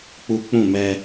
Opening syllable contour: high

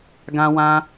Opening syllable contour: high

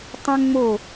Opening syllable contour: high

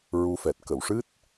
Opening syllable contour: rising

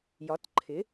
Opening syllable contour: rising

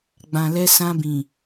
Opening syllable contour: low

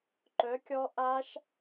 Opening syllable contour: rising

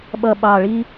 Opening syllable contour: low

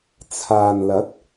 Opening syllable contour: low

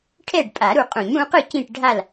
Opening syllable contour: falling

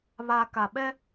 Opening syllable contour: low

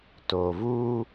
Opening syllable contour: low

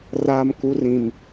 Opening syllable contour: low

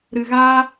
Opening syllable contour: low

